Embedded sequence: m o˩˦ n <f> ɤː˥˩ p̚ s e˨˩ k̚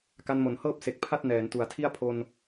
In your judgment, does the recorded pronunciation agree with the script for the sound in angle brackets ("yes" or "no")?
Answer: no